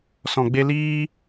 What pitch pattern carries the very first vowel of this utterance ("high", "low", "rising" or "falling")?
low